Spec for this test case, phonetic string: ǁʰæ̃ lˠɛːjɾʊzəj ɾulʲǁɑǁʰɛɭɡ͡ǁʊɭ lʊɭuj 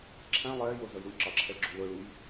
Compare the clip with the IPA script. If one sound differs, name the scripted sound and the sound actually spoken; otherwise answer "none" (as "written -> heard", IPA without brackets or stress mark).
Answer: none